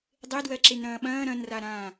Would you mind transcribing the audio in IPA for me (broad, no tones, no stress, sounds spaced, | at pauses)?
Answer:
dˤ e d w ɜ ǁ e n ɾ ɐ̃ː ɓ ɐ̃ː ɾ ɐ̃ n r a ɾ ãː